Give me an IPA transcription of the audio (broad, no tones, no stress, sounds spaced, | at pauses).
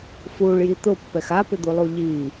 f u ɭ j i t̪ ʊ pː ɛ x a p ɪ d̪ u lˠ u ʎ i